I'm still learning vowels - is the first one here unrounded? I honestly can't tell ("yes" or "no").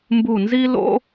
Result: no